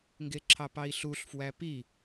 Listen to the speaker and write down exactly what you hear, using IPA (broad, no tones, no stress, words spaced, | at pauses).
ŋɡeǁʰɑpɑi̯ɬuɬ fwæpi